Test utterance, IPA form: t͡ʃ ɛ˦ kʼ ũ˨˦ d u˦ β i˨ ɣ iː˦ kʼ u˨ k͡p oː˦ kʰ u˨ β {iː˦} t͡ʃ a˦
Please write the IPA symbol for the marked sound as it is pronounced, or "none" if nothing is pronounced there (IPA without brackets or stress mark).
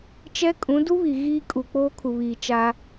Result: iː˨